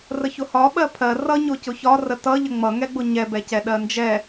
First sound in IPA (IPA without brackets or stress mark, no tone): r